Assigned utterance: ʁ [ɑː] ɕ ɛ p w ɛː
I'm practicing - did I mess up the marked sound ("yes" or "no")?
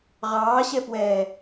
no